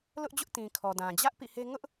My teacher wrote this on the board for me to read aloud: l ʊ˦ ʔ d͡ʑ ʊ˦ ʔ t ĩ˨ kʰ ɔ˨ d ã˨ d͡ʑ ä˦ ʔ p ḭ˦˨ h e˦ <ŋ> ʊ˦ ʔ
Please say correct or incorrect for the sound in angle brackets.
correct